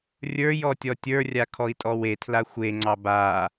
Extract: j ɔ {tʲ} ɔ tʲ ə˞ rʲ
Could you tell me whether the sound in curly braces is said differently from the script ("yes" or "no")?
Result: no